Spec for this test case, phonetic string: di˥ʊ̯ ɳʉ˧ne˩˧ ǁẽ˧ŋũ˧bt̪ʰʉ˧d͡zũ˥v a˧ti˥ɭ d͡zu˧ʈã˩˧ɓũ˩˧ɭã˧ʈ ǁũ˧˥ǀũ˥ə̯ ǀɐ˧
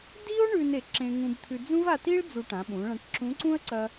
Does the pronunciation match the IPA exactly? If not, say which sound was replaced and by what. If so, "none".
none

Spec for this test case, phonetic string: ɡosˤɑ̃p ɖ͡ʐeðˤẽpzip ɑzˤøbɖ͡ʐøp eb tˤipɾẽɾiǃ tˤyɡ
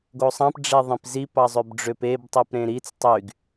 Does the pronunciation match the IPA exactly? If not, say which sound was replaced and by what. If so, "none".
ǃ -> t͡s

